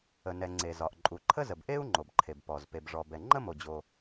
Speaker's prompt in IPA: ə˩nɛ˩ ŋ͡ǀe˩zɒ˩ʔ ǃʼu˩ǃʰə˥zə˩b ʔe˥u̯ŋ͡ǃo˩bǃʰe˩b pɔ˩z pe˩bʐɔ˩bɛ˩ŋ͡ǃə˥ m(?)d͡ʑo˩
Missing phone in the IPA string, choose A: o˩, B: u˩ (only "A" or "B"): A